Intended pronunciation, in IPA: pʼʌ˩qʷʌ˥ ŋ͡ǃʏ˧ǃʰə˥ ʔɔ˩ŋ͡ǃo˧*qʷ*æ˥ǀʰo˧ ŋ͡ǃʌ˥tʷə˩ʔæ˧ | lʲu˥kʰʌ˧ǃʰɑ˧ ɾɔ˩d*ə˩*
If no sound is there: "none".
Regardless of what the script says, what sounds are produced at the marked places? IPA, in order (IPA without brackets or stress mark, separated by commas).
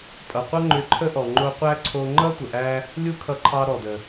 qʷ, ə˩